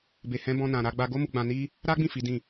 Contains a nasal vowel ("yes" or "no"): yes